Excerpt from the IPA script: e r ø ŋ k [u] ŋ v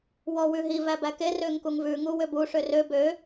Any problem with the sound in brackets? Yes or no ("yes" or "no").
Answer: no